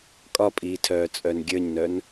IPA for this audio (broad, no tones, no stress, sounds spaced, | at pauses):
kʼ ɒ pʼ iː tʰ œː t͡sʼ œ n ɡʲ ə˞ ɲ n œ n